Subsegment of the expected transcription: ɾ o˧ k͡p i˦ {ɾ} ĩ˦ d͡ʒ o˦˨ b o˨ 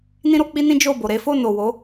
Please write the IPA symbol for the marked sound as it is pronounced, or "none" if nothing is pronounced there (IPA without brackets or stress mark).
n